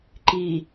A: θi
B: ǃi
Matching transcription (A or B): B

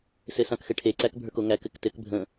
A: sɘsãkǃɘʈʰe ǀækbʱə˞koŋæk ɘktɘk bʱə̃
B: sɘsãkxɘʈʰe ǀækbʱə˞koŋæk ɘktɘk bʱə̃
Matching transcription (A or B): B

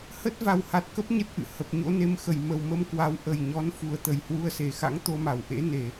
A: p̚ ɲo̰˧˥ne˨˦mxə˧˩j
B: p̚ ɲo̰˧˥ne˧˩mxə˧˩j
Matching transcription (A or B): A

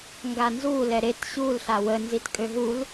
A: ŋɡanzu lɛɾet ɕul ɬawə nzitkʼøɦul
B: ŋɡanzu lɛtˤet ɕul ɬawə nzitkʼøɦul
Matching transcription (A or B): A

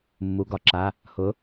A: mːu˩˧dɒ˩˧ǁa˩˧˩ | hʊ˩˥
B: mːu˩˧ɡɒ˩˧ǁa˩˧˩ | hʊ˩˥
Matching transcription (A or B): B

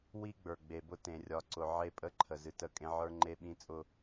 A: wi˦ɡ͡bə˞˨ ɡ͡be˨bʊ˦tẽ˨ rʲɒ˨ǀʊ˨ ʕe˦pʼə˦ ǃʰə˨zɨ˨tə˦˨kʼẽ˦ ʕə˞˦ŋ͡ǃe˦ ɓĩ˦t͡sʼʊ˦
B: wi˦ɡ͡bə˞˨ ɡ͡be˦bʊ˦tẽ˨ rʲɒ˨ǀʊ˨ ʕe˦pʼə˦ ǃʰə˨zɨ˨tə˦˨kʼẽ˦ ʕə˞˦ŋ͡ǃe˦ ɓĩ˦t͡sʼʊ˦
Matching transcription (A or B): A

